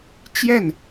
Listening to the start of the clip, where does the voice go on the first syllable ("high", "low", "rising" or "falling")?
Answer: falling